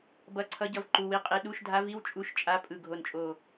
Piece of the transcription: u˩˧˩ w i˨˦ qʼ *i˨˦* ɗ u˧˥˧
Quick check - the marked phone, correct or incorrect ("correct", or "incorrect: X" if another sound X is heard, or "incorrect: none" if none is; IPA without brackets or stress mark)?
correct